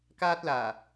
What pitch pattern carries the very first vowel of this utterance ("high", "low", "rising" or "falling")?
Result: high